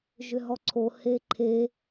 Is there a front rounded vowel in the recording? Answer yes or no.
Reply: yes